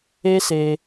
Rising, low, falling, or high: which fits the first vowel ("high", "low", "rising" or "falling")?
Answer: high